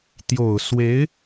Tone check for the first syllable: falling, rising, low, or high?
low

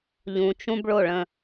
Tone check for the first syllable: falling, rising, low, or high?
low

